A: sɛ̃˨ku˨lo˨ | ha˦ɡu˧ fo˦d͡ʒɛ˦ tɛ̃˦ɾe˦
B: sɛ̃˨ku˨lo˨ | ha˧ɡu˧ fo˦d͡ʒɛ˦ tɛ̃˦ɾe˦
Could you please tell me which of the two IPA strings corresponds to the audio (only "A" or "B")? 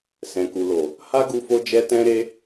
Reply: A